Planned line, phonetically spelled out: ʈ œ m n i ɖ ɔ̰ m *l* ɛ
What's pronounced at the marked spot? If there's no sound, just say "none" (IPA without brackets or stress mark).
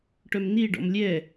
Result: lʲ